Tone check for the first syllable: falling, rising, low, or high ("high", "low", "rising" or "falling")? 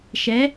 rising